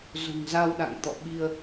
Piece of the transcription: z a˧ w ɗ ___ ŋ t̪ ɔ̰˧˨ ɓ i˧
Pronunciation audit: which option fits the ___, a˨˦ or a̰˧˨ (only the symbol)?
a̰˧˨